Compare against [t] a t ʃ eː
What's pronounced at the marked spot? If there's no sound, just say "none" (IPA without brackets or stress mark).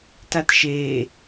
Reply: t